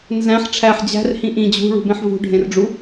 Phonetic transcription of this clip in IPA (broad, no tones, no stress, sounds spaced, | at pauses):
n z æ̃ ħ ʈ͡ʂʰ æ ħ d͡ʑ æ̤ r h ĩ ʔ ĩ d͡ʑ ṳ ɭ ṳ b ẽ ħ v ṳ ɖʱ ẽ r ɖ͡ʐ u